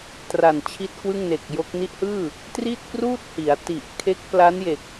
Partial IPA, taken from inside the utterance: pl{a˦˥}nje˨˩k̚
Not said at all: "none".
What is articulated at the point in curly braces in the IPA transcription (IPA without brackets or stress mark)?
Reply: a˦˥